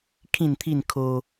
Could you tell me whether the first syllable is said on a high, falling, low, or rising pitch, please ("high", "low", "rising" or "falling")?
falling